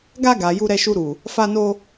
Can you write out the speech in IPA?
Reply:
ɡa˧ɡa˨ ju˧ɾɛ˧ʃu˧ɾu˨ | fa˧no˧

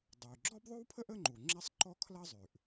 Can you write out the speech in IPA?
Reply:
dˤu˩y̯ ɡ͡ǁɔ˥bðˤʉ˥wpʰə˥ʔ ə˥ŋ͡ǃu˩ ŋ͡ǁɛ˥sˤǃɔ˥ kʰlɐ˥zˤʉ˩ʔ

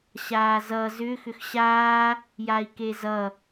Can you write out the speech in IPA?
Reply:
ɕaːzʌ zʏ xʏxɕaː | jai̯kezʌ

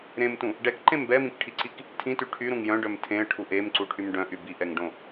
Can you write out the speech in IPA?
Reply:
ɾẽmtũ | ɖɛkǃẽm bɛmĩkʈʰiǀik | tʰĩty ʈʰyɾũŋ jœ̃ɖœm tʰẽə̯ʈʰu ʔemǀuʈʰym ɖœ̃ʔy biʔɛŋɖõ

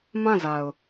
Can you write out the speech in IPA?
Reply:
mã˦˨za˨ʊ̯

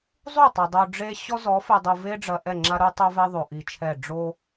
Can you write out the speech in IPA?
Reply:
zˤu˦˨tˤɐ˨ dˤo˨ ɖ͡ʐe˦ ɕɔ˦zɔ˨˦fɨ˨dˤu˨ ve˦ɖ͡ʐɐ˨ ʔɛ˦˨ŋ͡ǁa˦ɾu˦tˤo˦ vɛ˦ðˤo˨ ʔi˨t͡ʃʰɛ˦˨ ɖ͡ʐo˦

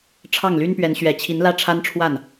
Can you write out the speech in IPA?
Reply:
ʈ͡ʂʰɑ˥˩ŋly˥npɥɛ˧˥n ɕɥɛ˨˩t͡ɕʰi˧˥n lä˥ʈ͡ʂʰa˥nʈ͡ʂʰwa˥˩n

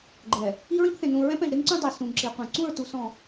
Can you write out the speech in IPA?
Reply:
ɡ͡ǃɛ˨ | i˦ɹĩ˦pθẽ˨ nũ˨ ɹɛ̃˦p ɛ̃˨ʒɾe˦ŋǀũ˦ dˤe˨ sũ˨ŋǁi˨qʷɛ̃˨ ǀũ˦˨ɹtu˨ sɔ̃˨

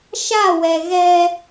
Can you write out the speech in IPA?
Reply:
ʃa˦˨wɛ˨ ɣɛ˦

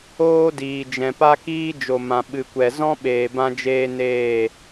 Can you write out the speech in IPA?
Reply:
oː˦diː˨ d͡ʒɛ̃˨pa˦kiː˦ d͡ʒo˨mã˨ ɓɨ˨kʷɛ˨ zɔ̃˦ɓeː˨bã˧d͡ʒeː˧ neː˦˨

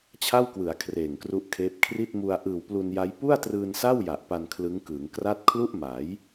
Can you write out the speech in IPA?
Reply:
t͡ɕʰa˥˩wkwɯ˩˦a̯ kʰreː˨˩ŋkru˦˥ʔkʰeː˦˥p̚ kʰri˥˩t̚mu˧a̯ ʔɯː˨˩wplu˧nja˦˥j pu˥˩a̯trɯː˧nsa˥˩w ja˨˩ʔpa˧n kʰlɯ˦˥ŋkɯː˩˦ŋ kra˥˩t̚ kʰlu˥˩ʔma˩˦j

